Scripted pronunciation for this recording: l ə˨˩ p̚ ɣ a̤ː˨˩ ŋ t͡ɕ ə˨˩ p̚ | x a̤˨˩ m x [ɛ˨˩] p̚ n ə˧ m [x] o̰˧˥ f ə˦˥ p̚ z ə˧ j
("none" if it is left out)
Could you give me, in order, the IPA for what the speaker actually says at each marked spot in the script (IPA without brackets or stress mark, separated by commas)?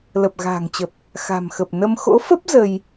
ə˨˩, x